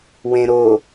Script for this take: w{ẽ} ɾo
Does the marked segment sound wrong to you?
no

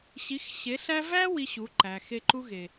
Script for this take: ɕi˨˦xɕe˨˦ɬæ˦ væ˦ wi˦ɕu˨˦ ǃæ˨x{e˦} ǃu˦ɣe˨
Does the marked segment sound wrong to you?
no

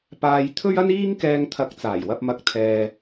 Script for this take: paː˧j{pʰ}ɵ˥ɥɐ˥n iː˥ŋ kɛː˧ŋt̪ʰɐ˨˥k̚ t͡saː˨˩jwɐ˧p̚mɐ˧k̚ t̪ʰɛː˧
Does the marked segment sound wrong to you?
yes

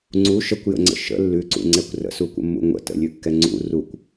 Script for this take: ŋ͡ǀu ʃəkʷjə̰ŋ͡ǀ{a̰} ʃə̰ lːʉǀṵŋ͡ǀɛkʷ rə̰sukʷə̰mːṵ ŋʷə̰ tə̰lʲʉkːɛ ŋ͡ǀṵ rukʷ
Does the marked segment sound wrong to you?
yes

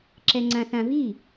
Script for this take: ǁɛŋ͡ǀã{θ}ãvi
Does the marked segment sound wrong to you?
no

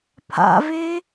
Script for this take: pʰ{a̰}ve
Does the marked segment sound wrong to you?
no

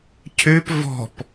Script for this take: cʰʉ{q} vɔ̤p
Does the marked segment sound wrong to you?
yes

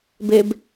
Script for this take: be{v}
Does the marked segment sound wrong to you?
yes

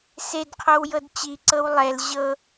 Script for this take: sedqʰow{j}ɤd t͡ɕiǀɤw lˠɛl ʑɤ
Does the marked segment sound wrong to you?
no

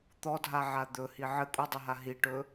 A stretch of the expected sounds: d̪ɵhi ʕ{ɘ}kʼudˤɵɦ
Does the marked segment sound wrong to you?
no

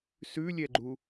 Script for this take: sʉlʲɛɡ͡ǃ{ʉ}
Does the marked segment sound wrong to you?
yes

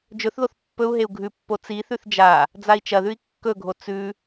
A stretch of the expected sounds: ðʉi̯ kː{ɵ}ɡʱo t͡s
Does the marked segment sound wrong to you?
no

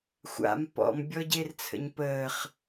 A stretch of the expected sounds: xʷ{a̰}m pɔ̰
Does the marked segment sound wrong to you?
no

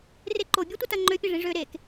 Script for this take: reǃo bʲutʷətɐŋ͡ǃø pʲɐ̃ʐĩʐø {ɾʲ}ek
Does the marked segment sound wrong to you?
yes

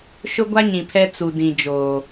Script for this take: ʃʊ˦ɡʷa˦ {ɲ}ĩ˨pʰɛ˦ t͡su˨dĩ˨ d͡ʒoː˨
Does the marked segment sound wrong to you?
no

